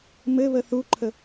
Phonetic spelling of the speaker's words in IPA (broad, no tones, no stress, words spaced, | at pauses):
mɘβə θuǃʰə